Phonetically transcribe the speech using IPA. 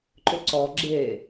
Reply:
ǃʏǀɔ ɡ͡ǁe

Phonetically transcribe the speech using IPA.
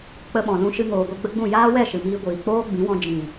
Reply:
k͡pə˧ɓɔ̃˨lũ˧ʃɨ˧ ŋoː˨ɡʷi˧ɡ͡bə˦ɡ͡bũ˦˨ jaː˦wɛ˦˨ʃɨ˨miː˧ ɡʷiː˨k͡poː˦ɡ͡bĩ˨˦wɔ̃˧ d͡ʒĩ˨

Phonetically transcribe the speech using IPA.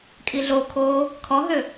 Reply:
kʼiɮokʰoː | kʰɔɦø

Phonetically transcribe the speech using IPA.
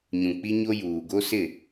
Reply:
ɲũ˨k͡pi˦ɲo˦juː˨ ɡo˦sɪ˦˨

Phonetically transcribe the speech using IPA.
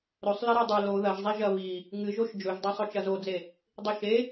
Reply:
ɾɵsˤ lɐɾɵdˤɵ lo ðɐʒzˤe ʒɐβi | ŋɨʒoʃ d͡ʒɵʒdˤɐsˤɵ t͡ʃɐzod͡ze | dˤiʃe

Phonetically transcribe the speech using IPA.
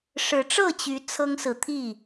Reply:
ʂɻ̩˨˦ʈ͡ʂɤ˥˨t͡ɕy˨˦ t͡sʰɤ˦ŋsɹ̩˨˦t̪ʰi˥˨

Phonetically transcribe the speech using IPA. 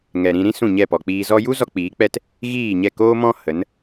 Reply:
ŋɛ˨ɾĩ˧ɾĩ˦ sũ˦˨ɲɛ˦˨pɔ˨k͡piː˧ zɔ˧ju˦ zɔ˦k͡piː˨˦k͡pɛ˦t | ɣiː˦˨ɲɛ˦˨ koː˦mɔ̃˦ hə˨˦n

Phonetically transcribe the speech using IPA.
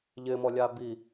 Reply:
ʎɪmɔlʲa bi

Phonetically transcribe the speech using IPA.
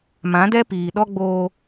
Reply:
mã˨˦dɛ˦piː˨ ɗɔ˦ɡ͡boː˦

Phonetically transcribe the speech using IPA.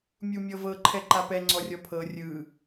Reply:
mʲumʲɤvɤ ǃʰɛǃapɛ ŋ͡ǀɔrʲɔpʰɤ rʲɯ

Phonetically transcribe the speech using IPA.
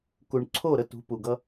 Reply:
ku˨ɳǀʰo˦˨ ɾə˧tṳ˨˦ pu˨ɡʌ˧

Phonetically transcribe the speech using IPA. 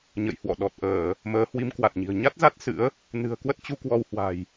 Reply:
ɲə̰˧˨jhwɔ̰˧˨ɗɔ˨˩t̚ ʔəː˧˩˨ | məː˨˦hwi˨˦mkwa˨˩t̚ɲi̤˨˩ə̯ ɲa˦˥t̚za˦˥t̚ sɨ̰˧˥ə̯ | nɨ̤˨˩ə̯kwə˦˥t̚ t͡ɕu˧kwɔ˧whwa̤˨˩j

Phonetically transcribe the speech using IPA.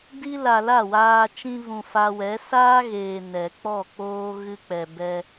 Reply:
di˧ la˨ la˦˨waː˧ t͡ʃĩ˧vũ˨ fa˧wɛ˨˦ saː˦ɣeː˨ nɛ˨k͡pɔ˦˨k͡poː˦ ɣɨ˧k͡pɛ˨bɛ˧

